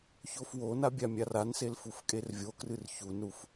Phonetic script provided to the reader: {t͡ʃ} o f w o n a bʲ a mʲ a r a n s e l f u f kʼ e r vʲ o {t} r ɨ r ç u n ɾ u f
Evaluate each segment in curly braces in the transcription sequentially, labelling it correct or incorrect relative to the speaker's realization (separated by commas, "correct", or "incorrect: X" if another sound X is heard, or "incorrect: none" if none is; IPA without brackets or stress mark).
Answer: incorrect: ç, incorrect: k